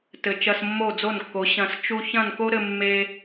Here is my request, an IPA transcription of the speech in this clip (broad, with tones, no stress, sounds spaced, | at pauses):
t ɘ˨ t͡ʃ ɐ˧ s mː o˦˨ d͡z o˦˨ n kː o˨˦ ɕ ɐ̃˧ s t͡ʃ u˧ ç ɐ̃˦˨ n k o˦ ɾ ɘ˧ mː e˧